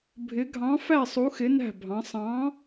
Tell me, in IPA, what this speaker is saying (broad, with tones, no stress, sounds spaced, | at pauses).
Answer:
bʱ ɪ˧˥ ɡʱ ɑ̃˧˥ f æ˥˧ sˤ u˧˥ x ɪ˧˥ n æ̤˥˧ bʱ ɑ̃˧˥ sˤ ɑ̃˧˥